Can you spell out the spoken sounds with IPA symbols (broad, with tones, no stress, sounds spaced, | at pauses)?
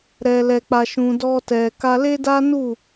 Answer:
ɾ ɛ˧ l ɛ˧ k͡p a˧ ʃ ũ˧ d ɔ˧ t ɛ˨ k a˧ l e˦ d a˦ n u˦˨